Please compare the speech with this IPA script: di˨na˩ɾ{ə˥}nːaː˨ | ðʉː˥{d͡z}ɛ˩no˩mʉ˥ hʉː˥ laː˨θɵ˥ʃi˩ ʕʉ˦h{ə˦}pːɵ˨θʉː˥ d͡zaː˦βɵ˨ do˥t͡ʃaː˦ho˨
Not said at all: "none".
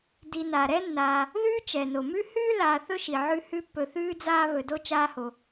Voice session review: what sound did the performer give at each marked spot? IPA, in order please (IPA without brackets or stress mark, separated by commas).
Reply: ɛ˥, t͡ʃ, ʉ˦